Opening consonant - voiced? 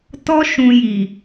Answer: no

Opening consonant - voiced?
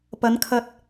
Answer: no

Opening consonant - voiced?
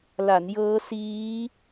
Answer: yes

